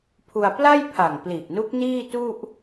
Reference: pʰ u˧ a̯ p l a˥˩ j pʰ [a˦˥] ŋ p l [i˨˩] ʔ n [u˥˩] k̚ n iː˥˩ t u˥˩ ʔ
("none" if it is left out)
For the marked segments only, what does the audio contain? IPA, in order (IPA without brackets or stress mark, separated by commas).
a˨˩, i˨˩, u˦˥